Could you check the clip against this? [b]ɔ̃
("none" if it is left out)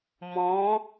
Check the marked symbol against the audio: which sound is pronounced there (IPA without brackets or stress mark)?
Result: m